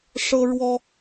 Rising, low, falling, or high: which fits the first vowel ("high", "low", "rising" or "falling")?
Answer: high